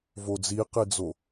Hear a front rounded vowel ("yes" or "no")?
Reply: no